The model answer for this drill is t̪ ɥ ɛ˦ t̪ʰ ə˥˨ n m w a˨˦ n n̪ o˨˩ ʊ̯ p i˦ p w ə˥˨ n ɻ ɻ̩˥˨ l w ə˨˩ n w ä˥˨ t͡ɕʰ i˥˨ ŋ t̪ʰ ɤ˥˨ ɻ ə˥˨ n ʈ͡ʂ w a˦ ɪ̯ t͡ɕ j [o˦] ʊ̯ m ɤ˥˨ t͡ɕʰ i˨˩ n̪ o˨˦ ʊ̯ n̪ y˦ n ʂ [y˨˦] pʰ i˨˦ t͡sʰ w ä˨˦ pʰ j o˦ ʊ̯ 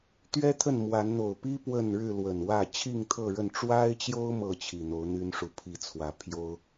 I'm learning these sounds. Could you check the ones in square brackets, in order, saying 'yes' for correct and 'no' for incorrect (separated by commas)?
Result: yes, no